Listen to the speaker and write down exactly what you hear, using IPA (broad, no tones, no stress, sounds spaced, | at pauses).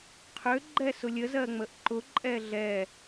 qʰ ø ɡ͡ǃ ɛ s ʊ lʲ ə z ɜ ŋ͡m ə ʔ ǃ ʊ ǃʼ ɛ ɮ ɛ